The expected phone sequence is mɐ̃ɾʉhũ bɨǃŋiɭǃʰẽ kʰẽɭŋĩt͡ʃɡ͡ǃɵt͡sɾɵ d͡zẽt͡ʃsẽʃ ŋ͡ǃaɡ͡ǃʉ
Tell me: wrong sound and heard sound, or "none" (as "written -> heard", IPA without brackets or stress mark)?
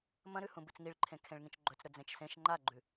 ǃ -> t͡s